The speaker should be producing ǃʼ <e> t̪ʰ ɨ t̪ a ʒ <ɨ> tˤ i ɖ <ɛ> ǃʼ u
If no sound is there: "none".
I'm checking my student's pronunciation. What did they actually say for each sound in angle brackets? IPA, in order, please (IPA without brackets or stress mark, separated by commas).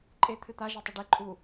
e, ɛ, e